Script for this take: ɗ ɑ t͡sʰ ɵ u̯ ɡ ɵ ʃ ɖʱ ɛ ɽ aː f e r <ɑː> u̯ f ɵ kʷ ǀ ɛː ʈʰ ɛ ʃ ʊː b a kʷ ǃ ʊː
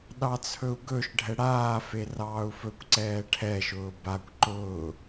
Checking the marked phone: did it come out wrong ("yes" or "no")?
no